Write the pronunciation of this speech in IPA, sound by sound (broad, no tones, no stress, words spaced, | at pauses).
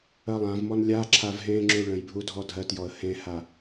ɜlˠãvmɔn lʲaǁʰav ɦẽŋ͡ǁu ɭə̃jbʱu dʱɔdʱɜtjɔə̯ hẽha